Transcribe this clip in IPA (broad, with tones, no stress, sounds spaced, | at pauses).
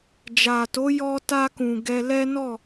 d͡ʒ a˨ t o˨˦ j ɔ˧ t a˧ k ũ˨ ɡ ɛ˧ l ɛ˦ n ɔ˦˨